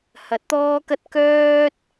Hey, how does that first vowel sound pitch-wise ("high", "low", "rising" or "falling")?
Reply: rising